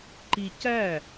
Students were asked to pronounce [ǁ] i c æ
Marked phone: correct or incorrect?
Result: incorrect